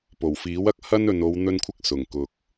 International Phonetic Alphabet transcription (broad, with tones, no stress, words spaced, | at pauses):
po˨˩wfiː˨˥wɐ˥k̚ hɐ˥nɵ˨n o˨˧wn̪ɵ˧nkʷʰɪ˧k̚ sʊ˨˩ŋkʊ˨k̚